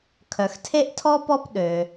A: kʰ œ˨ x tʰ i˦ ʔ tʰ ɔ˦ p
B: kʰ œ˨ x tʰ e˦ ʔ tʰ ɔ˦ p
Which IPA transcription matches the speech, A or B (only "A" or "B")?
B